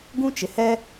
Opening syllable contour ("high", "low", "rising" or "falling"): high